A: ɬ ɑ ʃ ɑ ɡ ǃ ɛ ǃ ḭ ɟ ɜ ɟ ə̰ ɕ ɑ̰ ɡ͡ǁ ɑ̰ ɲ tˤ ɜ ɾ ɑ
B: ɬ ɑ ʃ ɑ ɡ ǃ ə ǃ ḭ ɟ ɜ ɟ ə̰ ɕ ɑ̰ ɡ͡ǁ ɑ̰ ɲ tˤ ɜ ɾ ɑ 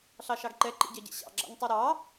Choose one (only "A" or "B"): A